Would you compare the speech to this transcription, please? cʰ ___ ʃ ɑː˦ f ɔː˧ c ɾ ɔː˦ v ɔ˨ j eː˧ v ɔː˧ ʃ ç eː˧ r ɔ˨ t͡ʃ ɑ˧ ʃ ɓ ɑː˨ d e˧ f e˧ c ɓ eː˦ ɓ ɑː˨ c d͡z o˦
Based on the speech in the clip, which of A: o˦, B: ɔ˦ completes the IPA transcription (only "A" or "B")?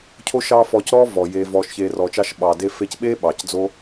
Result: A